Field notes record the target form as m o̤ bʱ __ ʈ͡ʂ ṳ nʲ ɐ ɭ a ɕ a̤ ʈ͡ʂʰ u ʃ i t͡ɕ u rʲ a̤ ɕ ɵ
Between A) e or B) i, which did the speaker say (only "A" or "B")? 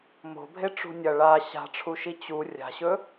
A